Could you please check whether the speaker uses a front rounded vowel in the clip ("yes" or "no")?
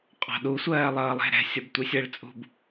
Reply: no